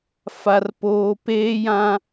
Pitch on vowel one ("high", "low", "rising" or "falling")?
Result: low